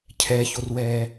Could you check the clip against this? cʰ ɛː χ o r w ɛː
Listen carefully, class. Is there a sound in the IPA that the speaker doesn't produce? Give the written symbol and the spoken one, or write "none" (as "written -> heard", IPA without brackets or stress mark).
χ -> ç